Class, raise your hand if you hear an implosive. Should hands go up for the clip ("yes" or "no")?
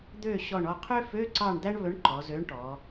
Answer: no